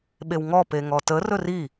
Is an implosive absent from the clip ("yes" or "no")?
no